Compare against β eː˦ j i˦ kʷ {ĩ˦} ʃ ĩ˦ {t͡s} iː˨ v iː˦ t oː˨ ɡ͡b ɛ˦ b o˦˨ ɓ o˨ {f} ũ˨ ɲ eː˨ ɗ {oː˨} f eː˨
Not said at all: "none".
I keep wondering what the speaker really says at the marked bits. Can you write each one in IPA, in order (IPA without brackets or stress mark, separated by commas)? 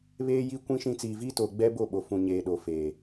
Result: ĩ˦, t͡s, f, o˨